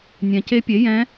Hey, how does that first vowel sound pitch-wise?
low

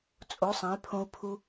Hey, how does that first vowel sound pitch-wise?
rising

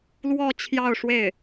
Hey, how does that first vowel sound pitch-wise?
falling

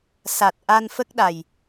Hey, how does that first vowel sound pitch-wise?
low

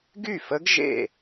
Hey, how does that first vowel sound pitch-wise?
falling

